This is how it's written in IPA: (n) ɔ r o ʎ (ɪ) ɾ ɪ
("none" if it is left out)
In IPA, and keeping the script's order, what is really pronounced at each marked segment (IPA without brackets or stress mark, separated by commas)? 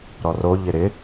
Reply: ɾ, ɪ